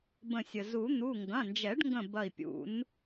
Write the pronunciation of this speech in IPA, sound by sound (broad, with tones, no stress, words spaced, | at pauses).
bə̃˧˩sʲə˩ zu˨˩˦ n̪u˩˧˩ ŋɡɐ̃˩˧˩nd͡ʒɛ˨˩˦ɖŋɡə̃˧˩ bɐ˧˩i̯pʲṵ˨˩˦n